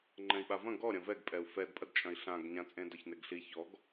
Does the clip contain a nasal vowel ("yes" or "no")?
yes